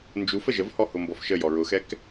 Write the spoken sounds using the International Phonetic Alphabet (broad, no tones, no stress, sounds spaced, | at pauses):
n d͡ʒ u f ə ʒ ə v h ɔ h ʊ m b ɔ f ʃ ə j ɔ ɹ ʊ x ɛ k